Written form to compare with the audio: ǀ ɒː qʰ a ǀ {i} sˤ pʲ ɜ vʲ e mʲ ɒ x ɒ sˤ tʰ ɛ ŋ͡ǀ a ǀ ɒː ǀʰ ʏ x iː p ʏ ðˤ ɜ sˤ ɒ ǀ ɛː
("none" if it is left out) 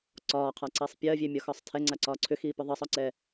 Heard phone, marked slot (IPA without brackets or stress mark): i